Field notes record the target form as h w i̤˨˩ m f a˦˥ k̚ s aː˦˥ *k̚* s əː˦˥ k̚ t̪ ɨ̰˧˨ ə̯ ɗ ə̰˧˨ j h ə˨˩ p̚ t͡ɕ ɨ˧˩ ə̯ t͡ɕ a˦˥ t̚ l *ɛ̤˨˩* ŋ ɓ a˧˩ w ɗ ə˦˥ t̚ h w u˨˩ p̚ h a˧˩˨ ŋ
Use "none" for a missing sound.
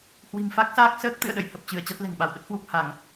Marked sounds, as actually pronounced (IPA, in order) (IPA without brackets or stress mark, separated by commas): k̚, ɛ̤˨˩